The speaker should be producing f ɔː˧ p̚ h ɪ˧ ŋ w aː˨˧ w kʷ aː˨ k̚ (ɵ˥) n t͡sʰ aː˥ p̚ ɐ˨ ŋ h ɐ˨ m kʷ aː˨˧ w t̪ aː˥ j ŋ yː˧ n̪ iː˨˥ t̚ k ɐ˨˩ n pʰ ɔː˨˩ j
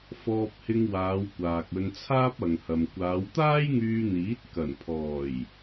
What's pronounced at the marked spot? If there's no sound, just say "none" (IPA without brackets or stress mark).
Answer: ɵ˧